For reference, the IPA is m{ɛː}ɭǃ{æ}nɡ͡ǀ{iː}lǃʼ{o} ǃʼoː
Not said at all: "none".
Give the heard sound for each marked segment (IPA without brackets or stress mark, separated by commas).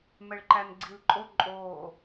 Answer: ɛ, æ, i, o